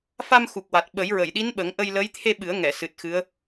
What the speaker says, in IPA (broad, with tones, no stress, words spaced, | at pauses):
fa˧mxu˨˩k̚wa˨˩t̚ ɓə˨˩˦jɹə˨˩˨jɗi˧˥n ɓə˨˩˦ŋ ʔə˧jlə˧˥j t̪ʰe˧ɓɨ˨˩˦ə̯ ŋɛ˨˩˨sɨ˨˩t̚ xɨ˧˥ə̯